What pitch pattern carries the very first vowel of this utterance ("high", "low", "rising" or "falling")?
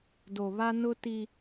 low